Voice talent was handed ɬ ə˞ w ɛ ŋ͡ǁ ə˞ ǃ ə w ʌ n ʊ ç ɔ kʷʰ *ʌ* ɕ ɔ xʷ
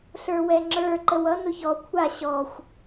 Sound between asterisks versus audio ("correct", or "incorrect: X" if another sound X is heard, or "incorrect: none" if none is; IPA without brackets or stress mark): incorrect: a